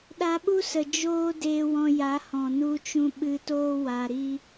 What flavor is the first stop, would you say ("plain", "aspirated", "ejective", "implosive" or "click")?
implosive